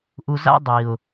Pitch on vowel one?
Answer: low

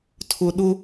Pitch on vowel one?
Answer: low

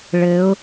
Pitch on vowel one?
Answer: rising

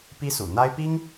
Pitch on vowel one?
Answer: high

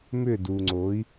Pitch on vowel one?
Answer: falling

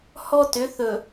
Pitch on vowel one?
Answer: high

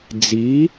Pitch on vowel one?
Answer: rising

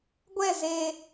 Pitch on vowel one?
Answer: falling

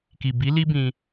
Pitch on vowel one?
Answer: low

